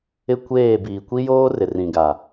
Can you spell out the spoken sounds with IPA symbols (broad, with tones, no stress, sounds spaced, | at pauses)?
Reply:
ɪ˦ kʷ eː˦˨ b iː˨ kʷ i˦ j oː˦ r ɪ˨ r ĩ˨ ɡ a˨